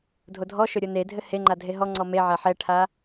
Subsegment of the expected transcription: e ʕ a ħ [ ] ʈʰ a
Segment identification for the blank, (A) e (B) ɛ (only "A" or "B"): B